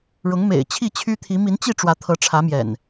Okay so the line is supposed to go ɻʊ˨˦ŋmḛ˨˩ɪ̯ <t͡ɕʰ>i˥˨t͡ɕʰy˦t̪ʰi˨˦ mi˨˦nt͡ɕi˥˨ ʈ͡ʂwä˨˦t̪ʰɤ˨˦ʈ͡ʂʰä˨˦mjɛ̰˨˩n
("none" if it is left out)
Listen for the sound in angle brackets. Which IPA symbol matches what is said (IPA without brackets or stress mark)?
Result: t͡ɕʰ